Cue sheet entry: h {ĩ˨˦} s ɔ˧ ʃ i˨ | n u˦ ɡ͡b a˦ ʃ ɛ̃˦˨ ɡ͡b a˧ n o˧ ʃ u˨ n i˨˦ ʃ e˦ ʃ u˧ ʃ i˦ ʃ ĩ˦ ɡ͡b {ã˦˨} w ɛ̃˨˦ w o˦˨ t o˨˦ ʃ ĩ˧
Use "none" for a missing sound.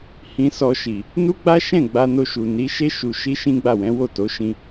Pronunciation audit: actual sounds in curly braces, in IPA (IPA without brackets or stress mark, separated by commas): ĩ˧, a˦˨